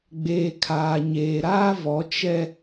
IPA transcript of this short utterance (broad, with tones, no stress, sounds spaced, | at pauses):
ɡ͡b eː˨ kʰ aː˨ ɲ eː˨ ɾ aː˦ v ɔ˨˦ t͡ʃ ɛ˦